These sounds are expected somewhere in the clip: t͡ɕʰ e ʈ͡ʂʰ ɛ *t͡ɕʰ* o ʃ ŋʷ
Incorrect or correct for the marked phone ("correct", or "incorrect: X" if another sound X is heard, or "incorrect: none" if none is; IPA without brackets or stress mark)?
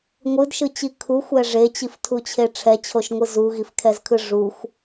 correct